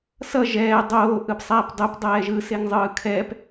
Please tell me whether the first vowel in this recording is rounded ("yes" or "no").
no